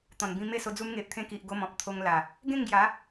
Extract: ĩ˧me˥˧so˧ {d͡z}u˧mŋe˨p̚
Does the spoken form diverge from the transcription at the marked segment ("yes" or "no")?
no